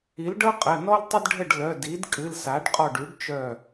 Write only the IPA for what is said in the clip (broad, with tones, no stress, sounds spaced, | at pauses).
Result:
i˩˥ l ɖ ɤ˥ qʼ ə˩˧˩ n ɔ˥ l tˤ ə˥ d ɖʱ ə˥˩ ɖ l œ˩˧˩ d i˩˥ d kʼ ɨ˩˧˩ l s a˩˥ ɖ qʼ ɔ˧˩ ɖ y˩˥ ɖ t͡ʃ œ˧˩